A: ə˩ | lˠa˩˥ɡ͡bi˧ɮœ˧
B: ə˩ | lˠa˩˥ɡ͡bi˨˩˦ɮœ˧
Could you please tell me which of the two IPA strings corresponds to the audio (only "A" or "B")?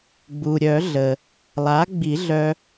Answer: B